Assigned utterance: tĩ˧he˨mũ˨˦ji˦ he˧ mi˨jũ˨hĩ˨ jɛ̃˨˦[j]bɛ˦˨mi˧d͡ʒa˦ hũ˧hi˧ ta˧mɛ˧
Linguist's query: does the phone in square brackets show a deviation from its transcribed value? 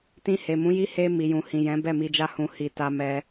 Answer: yes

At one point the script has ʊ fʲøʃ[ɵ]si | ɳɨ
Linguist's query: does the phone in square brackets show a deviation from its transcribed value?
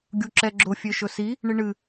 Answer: no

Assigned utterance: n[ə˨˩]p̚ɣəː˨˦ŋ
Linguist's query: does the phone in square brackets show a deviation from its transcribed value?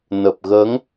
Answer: no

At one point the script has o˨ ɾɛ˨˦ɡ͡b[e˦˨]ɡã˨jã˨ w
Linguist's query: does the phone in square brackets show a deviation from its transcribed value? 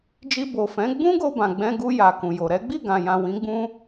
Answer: yes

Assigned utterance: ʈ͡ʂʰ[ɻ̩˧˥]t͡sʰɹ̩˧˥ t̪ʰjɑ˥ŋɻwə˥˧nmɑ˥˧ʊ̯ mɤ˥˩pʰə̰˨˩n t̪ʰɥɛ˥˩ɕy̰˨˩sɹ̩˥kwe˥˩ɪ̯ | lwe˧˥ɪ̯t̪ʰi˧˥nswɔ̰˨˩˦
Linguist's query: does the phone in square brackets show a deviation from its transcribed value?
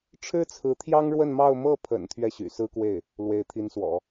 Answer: yes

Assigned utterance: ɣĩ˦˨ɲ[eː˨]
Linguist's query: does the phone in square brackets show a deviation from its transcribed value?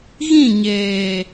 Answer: no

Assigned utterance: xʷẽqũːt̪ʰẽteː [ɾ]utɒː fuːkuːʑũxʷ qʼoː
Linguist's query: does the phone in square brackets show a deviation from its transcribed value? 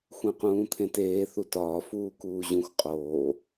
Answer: yes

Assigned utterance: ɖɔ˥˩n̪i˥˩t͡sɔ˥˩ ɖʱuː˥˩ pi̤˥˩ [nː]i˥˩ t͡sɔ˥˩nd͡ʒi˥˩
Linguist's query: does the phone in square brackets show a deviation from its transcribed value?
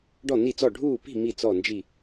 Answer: yes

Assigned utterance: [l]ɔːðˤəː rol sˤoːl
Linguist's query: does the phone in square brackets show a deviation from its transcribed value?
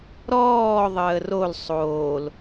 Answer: yes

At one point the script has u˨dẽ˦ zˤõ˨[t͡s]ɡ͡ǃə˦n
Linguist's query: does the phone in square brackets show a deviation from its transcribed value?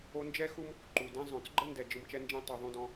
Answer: no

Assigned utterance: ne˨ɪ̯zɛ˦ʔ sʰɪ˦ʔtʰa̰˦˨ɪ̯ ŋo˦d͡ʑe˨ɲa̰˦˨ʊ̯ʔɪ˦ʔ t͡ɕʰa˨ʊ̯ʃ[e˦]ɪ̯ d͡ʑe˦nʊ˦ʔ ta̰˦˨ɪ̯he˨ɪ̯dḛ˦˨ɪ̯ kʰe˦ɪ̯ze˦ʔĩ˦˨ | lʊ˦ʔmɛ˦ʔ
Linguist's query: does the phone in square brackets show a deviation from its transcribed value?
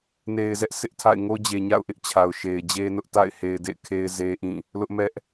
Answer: yes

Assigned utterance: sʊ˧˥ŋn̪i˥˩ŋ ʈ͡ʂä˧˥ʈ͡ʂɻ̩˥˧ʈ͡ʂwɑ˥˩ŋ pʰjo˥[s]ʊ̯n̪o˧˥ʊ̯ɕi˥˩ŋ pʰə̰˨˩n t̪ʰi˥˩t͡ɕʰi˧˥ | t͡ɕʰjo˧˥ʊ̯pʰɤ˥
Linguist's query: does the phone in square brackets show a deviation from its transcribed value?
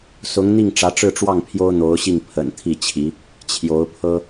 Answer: yes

